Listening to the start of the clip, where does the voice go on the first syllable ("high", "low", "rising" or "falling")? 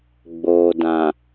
low